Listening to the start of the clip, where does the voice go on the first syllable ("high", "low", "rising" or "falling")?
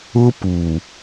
high